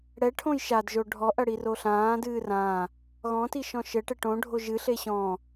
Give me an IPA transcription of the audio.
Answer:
ɽ ɛ ʈʰ õ j ʃ a d ʒ o ɖʱ ɔ ʔ ɐ ɽ i r o ɬ ãː d ɨː r ã | ɣ ɔ̃ t i ʃ ɔ̃ ʃ ɘ ʈ ɘ ʈ õ ɖʱ o ʒ ɨ ɬ e ɕ ɔ̃

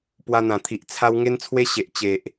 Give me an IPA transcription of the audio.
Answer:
p w a˧ n̪ ã˨˩ t̪ʰ i˨ ʔ t͡sʰ a˦ w ŋ e˦ n t͡sʰ w e˦ ɕ e˨ ʔ t͡ɕ e˨ ʔ

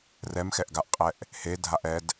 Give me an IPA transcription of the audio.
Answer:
r ɛ m x ɛ ʔ ɡ a ʔ qʼ ɛ ʔ | h e dʱ a ʔ ɛ d

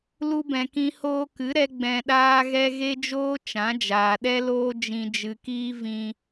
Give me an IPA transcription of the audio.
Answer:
l u˧ b ɛ̃˨ k ĩ˧ h oː˧ k ɨ˨˦ ɾ ɛ˧ ɡ͡b ɛ̃˧ ɗ aː˦ ɣ ɛ˦ ɣ e˦ d͡ʒ oː˦ t͡ʃ ã˨˦ d͡ʒ aː˨ ɗ ɛ˦ l oː˦ d͡ʒ ĩ˧ d͡ʒ ɨ˧ k iː˦ v ĩ˦

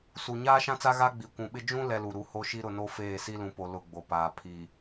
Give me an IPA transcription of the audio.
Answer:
s u˨ ɲ aː˦ ʃ ã˦ t͡s a˦ ɣ a˦ ɡ͡b i˨ kʷ ũ˨ ɓ ɪ˦ d͡ʒ ũ˦ l ɛ˦ l u˨ ɾ u˨ h o˦ ʃ i˦ ɾ ʊ˨ n o˦ f eː˦˨ s i˦ l ũ˨ p o˨ l ʊ˦˨ ɡ͡b o˨ p aː˨ pʰ i˨

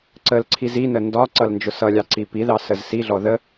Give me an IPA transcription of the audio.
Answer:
ǀ ə l ǀʰ i z i n ə n d ɒ ǀ ʌ l n d͡ʒ ʊ s ʌ lʲ ɑ ǀ i p i ð ɑ s ə z s i ɮ ɔ ð ə

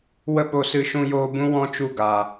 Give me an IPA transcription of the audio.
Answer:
w ə˦ ɓ o˧ s ɨ˧ ʃ ũ˧ j oː˧ b ũ˦ w ɔ̃˦ t͡ʃ u˦˨ ɡ aː˨

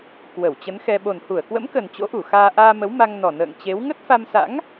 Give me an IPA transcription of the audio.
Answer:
k w ə˧˩ w t͡ɕ ə˨˦ n x ɛ˧ ɓ o˨˩ n h u˧˩ ə̯ k w ə̰˧˥ m k ə˨˩ n t͡ɕ o̰˧˥ ʔ u˧˩ x aː˧ ʔ aː˧ m ə˨˦ w m a˧ ŋ n ɔ˨˩ n ə̰ː˧˨ ŋ t͡ɕ e˨˦ w ŋ ə˦˥ t̚ f a˧ m s a̰˧˥ ŋ

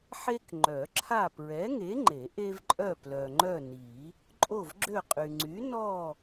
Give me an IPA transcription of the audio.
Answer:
ħ e˦ k ŋ͡ǃ œ˨˩˦ ǁʰ a˦˨ p ɹ ɛ˨˥ ŋ e˨˥ ŋ͡ǃ e˨˩˦ ʔ e˦ v ǃʼ œ˦˨ p l œ˨ ŋ͡ǃ œ˦˨ n i˨˩˦ | ǃʼ o˦˨ v ɡ͡ǁ ø˦˨ qʼ y˨ ŋ͡ǀ y˨˥ n ɔ˦˨

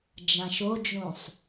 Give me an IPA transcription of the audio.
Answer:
d͡ʒ ã ʃ o d͡ʒ ũ sˤ

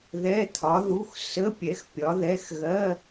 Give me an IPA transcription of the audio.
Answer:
ð ɛ˧˥˧ t̪ʰ ɒ˨˥ ð u˧˥˧ x s ə˧˥˧ pʲ ɛ˨˥ x pʲ ɒ˨˥ ð ɛ˧˥˧ x ɣ ɜ˧˥˧

